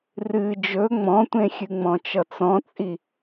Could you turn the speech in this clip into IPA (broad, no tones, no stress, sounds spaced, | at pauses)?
r ɨ d͡ʒ ɵ ŋ͡m ɔ̃ tʷ ẽ xʲ ɨ ŋ͡m ɔ̃ t͡ʃ ʌ t͡s ɔ̃ t͡sʼ i